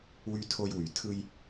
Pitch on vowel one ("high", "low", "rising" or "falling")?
high